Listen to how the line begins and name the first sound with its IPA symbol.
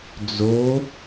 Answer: d͡z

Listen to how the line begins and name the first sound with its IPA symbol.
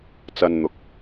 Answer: t͡s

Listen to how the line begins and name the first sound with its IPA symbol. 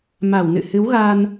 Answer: m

